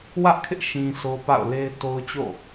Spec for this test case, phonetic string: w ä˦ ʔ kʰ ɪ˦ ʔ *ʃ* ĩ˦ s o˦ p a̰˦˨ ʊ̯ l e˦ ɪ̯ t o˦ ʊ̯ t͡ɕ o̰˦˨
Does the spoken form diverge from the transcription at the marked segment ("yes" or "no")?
no